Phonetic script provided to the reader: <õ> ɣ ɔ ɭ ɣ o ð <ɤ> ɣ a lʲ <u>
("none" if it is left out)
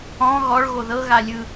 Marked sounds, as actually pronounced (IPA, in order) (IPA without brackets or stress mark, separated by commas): ɔ̃, ɤ, ɯ